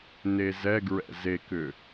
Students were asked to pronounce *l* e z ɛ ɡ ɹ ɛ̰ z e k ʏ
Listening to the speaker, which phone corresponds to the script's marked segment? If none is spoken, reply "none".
n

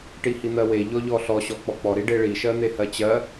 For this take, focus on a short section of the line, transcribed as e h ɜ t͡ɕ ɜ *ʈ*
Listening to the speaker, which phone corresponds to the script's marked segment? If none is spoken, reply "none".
none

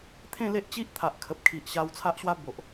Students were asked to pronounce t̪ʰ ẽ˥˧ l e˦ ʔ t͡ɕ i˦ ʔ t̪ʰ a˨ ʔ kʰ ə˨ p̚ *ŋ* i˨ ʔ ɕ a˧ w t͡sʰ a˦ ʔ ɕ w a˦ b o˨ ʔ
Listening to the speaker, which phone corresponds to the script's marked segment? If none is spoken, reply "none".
kʰ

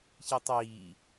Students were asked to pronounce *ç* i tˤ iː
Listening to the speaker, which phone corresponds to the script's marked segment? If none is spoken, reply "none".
ç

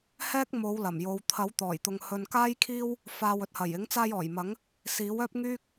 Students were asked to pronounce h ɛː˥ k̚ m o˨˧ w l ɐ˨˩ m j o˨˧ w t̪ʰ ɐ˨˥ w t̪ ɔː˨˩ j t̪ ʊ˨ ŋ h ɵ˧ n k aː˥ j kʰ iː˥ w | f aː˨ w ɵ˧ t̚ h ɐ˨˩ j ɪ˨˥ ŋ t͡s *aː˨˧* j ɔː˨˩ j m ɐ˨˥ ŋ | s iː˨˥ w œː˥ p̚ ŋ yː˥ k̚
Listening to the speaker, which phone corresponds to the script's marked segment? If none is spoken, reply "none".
aː˧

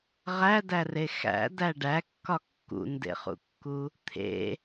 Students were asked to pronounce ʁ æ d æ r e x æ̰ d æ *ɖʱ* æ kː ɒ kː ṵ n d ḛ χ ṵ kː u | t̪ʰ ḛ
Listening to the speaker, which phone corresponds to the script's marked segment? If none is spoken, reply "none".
ɖ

